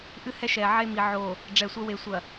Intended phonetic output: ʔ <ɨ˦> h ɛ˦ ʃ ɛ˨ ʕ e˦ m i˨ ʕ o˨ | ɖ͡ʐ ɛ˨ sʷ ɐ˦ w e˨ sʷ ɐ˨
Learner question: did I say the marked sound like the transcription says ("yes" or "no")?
yes